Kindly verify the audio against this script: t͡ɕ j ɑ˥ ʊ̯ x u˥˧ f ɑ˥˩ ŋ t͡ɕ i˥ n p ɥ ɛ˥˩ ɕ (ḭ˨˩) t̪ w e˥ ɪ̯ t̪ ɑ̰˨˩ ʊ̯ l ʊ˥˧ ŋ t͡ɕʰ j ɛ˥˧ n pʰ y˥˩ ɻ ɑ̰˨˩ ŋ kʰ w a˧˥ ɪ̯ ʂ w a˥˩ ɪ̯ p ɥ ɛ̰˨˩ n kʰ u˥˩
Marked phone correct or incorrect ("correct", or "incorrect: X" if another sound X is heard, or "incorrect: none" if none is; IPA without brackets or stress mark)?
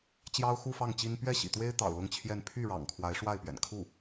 correct